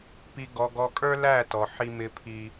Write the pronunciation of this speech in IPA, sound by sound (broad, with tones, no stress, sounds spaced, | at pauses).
p i˨ ɡ ɔ˨ ɡ ɔ˨ kʼ ə˞˦ l æ˦˨ t ɔ˨ ħ i˦ m ɪ˦ pʰ i˦